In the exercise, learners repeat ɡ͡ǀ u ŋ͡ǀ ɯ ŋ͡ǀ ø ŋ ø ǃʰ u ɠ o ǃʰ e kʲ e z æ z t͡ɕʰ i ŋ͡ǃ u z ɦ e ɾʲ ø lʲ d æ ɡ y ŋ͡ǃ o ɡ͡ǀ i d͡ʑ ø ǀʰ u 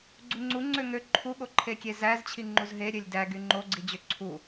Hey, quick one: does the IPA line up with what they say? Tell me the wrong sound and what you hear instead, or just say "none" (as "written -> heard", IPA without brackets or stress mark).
ɯ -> u